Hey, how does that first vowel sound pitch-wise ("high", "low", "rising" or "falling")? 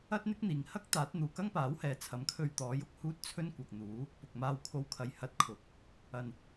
high